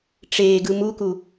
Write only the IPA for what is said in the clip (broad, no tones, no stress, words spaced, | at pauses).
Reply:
ʈ͡ʂeːɡɯ muku